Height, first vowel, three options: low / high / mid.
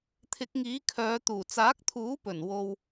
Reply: high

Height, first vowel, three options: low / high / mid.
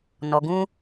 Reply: mid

